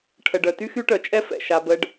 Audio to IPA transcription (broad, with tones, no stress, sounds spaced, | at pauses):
ʈʰ ə˨ ɖ œ˨ t y˦ x y˦ ʈ œ˨ t͡ʃʼ ɛ˦ f ɛ̰˨ ʃ a˧ b ə˦ ɖ